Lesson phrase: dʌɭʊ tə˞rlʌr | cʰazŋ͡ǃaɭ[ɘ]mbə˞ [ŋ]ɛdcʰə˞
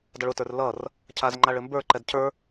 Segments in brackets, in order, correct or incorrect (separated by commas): correct, incorrect